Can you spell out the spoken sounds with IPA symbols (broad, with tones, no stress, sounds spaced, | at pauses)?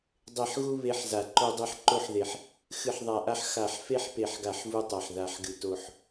dˤ e˨˩ ħ ɣ u˧ β e˧ ħ z a˨˩ ǃ o˧ dˤ e˧ ħ ǃ o˧ ħ ð e˨˩ ħ | x ɨ˨˩ ħ ðˤ a˨˩ ʔ a˧ ħ x a˨˩ ħ f e˧ ħ p e˨˩ ħ ɡ a˨˩ ħ v u˧ tˤ a˨˩ ħ ð a˨˩ ħ ɡ ɨ˨˩ t o˨˩ ħ